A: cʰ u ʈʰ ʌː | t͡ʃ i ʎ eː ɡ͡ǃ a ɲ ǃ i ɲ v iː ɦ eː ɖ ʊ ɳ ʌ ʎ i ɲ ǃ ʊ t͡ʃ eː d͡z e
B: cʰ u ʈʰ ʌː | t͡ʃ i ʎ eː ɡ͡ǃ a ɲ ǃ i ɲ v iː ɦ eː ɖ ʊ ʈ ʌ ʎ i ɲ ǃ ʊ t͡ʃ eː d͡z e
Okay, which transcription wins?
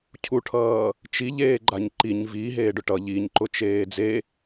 B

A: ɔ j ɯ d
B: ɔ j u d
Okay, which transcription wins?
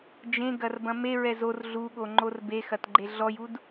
B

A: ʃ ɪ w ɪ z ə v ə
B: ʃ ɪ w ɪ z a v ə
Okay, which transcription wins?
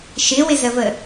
A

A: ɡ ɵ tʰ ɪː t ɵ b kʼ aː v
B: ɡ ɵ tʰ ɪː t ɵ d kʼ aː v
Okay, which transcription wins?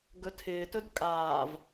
B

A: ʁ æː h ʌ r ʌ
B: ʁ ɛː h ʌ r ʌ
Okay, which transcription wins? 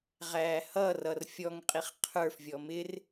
A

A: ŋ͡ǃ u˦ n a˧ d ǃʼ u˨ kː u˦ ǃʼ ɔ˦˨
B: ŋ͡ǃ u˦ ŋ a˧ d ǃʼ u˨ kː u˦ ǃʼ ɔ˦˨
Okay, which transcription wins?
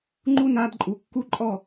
A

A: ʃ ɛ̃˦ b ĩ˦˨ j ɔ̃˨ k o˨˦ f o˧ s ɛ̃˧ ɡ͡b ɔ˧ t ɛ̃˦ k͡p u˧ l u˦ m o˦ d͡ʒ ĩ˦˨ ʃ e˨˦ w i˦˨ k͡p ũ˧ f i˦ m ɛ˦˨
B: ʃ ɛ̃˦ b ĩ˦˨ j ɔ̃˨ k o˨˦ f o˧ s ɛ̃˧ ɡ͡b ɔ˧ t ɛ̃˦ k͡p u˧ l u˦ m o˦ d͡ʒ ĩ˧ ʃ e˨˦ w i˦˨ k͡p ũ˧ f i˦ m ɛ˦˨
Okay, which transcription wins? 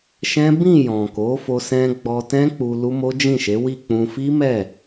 A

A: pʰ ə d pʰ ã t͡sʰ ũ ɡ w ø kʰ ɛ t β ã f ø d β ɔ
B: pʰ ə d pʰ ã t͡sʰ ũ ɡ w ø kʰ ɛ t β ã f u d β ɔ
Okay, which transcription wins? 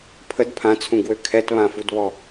B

